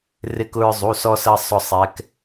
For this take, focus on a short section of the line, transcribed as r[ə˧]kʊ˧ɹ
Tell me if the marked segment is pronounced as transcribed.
no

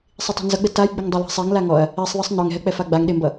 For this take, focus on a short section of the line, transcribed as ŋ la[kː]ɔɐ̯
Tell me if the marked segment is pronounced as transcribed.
no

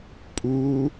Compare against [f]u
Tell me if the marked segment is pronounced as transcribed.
no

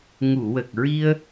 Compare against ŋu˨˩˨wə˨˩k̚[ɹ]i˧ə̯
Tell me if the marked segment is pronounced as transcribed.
yes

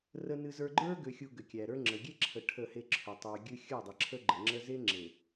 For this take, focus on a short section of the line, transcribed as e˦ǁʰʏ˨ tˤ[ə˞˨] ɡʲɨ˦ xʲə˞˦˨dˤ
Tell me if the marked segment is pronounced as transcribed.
yes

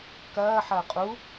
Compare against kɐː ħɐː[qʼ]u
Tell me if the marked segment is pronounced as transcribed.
yes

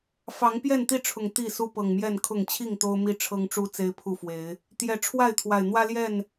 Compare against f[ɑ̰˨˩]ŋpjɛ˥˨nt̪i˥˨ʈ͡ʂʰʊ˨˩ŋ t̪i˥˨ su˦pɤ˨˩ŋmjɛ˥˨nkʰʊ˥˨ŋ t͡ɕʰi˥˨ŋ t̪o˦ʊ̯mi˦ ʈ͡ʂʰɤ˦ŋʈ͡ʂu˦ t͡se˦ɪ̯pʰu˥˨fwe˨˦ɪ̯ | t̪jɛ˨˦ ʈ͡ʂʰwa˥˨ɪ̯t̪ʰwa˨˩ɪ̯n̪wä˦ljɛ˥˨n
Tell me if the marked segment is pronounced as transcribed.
no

